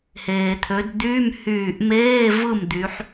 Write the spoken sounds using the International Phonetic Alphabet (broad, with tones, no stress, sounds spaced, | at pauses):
h eː˩ t̪ʰ ø˩˧ d d̪ yː˧˥˧ m h yː˧˩ ʔ m eː˧˥˧ v ɯ˥˨ m d̪ y˩˧ ħ